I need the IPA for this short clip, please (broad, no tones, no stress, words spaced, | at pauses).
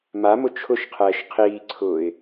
mamʊ t͡ʃʰʊʃqʰɛːʃ qʰiːǀʰʊːɪ̯